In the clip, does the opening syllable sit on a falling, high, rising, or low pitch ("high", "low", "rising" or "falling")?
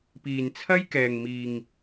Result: low